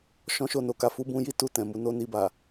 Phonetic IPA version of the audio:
ʃ ɔ̃˦ ʃ o˦˨ n o˧ k a˦ f u˦ b ũ˦ j i˦ t u˦˨ t ɛ̃˨ m u˨˦ n o˦ n i˧ b a˨

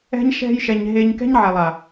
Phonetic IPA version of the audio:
ɛ̤˧ ɲ ʃ ɛ̤˧ j ʃ ɛ˨ ɲ ɦ e˧ ɲ k ɛ̤˦ ɲ ʕ ɛ˨ lˠ a˨

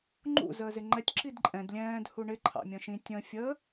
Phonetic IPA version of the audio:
ŋ͡ǃ ṵ z əː z ɪ ŋ͡ǃ ɛ tʲ ǁ i d ǃʼ ɛ̃ d lʲ ɛ̃ː d h u ɳ ɪ ǃʰ ɑ̰ mʲ ə̃ ʃ ĩ tʲ ə̃ fʲ ə

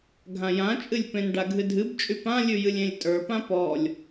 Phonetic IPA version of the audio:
ɡʱ ã j ã t͡ʃʼ ɨ lʲ p ẽ n ɖ a ɡʱ ɨ dʱ ɨ b t͡ʃʼ y p ã lʲ ʉ j ɨ lʲ ẽ lʲ tʼ ə˞ p ã p ɔ lʲ

